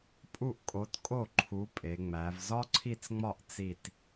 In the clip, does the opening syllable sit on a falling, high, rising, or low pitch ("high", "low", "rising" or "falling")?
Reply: falling